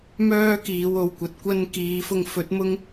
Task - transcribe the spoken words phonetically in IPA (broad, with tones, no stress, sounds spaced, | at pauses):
m œː˥ k iː˨˧ w o˨ w kʷ ɐ˨ t̚ kʷ ɐ˥ n k iː˨˧ f ʊ˧ ŋ f ɵ˨˥ t̚ m ʊ˥ ŋ